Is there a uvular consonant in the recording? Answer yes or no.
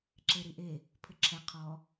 yes